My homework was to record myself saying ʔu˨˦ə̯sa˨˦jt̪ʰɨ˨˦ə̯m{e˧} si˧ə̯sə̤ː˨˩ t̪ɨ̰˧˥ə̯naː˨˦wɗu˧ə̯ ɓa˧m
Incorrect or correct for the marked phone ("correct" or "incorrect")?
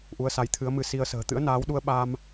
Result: incorrect